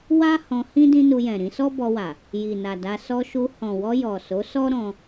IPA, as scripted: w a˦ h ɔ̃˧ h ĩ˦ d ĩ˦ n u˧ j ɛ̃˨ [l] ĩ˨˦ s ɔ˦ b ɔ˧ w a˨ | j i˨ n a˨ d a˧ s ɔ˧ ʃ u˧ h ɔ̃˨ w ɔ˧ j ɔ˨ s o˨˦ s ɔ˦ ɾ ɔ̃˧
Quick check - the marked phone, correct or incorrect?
incorrect